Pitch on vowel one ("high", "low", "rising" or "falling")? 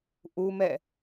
high